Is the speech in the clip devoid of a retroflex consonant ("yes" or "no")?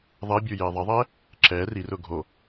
yes